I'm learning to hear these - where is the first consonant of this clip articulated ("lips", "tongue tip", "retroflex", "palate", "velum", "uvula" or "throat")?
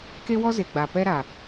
velum